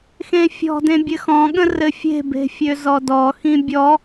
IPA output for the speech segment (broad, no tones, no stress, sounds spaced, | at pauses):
x ẽ fʲ ɔ̤ d ẽ bʲ ɘ x ɔ̃ ɠ ə̃ r ɘ fʲ e̤ b e̤ fʲ ø z ɔ d ɔ x ĩ bʲ ɔ